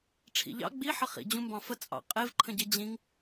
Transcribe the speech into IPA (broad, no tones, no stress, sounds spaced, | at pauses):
ʈ͡ʂʰ ḭ ʎ ɑ̰ ɡ͡b i ħ ə χ ḭ d͡ʑ ũ m b ɑ̃ f ə t͡sʼ ɑ̰ qʼ e v ǃʰ ə̃ ɟ e d͡ʑ ĩ ŋ